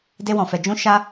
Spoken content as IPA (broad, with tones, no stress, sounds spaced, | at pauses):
d e˦ w ɔ̃˧ f ɛ˧ d͡ʒ ũ˦ ʃ a˦